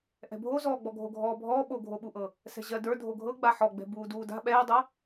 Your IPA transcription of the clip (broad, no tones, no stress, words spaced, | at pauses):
ʔɛ̤bʱozɔːɡ͡bɔ ɡʱoɡʱɔːbʱɔː ɓoɡʱoɓuʔɤ | sɛ̤ʑɜdə˞ dʱoɡʱɤ ɡ͡baħɔɡ͡bɛ̤ buːduːda̤ ɓɛːdˤɤ